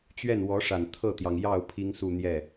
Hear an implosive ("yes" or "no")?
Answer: no